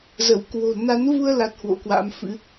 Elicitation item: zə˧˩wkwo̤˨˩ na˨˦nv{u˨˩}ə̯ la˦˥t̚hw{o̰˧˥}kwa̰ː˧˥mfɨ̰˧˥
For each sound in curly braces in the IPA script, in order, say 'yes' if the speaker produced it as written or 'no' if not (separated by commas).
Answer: no, yes